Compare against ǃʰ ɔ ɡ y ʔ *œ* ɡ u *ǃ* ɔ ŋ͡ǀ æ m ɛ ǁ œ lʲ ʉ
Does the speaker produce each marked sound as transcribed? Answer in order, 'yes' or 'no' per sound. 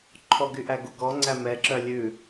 no, no

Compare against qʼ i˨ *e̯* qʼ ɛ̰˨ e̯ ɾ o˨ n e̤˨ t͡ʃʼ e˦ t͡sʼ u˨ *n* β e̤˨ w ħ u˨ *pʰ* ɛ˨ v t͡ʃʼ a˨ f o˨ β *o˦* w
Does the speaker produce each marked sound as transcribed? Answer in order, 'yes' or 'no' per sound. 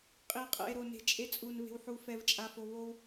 yes, yes, no, yes

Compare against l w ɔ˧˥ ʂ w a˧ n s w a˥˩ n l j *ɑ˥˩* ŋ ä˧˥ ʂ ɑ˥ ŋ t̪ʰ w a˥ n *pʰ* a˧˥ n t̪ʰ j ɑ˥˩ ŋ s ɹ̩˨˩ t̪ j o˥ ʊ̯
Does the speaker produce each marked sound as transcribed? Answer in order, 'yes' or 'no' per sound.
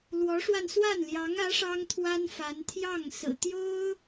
no, no

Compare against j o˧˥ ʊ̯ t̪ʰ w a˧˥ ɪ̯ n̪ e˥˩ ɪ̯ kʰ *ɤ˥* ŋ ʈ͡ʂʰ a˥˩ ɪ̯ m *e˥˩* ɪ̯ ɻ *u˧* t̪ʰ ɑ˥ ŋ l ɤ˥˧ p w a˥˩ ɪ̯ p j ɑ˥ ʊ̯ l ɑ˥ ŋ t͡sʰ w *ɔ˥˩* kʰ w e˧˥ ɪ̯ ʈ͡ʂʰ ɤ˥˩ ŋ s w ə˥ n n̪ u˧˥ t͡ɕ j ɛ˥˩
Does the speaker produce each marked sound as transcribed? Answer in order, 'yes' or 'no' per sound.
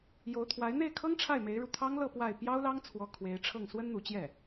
yes, no, yes, no

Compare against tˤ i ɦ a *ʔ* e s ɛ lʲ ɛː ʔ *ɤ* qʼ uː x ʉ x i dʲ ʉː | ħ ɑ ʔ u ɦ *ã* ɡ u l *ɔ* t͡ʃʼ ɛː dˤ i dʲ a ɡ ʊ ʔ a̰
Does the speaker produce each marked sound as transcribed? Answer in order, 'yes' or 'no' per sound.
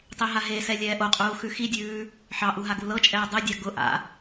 no, no, no, no

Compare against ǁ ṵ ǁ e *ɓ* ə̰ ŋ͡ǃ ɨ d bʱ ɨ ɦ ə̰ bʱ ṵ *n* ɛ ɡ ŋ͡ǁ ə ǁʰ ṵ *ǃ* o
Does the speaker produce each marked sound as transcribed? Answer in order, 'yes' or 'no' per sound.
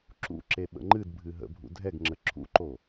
yes, no, yes

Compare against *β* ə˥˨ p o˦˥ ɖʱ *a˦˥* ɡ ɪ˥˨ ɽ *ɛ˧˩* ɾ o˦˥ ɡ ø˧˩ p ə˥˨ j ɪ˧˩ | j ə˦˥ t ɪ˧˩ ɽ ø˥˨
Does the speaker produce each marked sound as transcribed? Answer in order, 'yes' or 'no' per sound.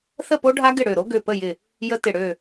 no, yes, no

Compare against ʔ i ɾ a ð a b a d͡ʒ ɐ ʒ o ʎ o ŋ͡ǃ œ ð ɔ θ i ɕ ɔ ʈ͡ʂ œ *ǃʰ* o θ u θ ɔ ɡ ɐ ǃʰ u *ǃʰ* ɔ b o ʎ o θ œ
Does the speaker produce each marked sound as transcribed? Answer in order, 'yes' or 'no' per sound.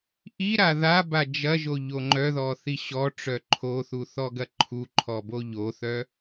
yes, yes

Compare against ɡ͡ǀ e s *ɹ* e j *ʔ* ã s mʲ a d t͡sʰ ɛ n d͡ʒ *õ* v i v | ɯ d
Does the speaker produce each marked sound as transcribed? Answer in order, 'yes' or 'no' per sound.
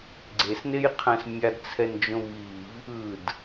no, no, yes

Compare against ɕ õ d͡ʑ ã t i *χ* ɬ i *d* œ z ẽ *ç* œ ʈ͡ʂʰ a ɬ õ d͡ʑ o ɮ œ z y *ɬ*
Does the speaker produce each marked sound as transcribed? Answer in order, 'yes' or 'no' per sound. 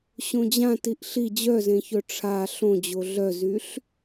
no, no, yes, yes

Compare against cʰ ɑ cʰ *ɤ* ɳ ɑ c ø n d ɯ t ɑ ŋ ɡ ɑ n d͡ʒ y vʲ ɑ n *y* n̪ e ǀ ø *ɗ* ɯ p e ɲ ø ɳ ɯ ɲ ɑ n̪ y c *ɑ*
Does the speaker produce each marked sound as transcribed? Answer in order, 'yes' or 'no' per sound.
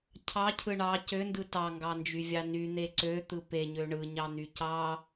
no, yes, no, yes

